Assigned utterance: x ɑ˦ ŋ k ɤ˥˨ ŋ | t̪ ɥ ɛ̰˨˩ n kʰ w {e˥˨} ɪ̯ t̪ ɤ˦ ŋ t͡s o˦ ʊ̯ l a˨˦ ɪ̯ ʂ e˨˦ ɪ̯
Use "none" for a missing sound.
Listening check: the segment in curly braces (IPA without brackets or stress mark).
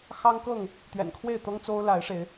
e˥˨